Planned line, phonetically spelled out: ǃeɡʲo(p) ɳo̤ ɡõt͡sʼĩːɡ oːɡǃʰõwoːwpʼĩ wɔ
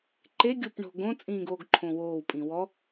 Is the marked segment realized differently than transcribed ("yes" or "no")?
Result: no